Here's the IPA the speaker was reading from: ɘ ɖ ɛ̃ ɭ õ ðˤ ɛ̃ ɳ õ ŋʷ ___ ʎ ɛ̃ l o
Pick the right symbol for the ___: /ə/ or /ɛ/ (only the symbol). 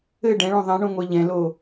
ɛ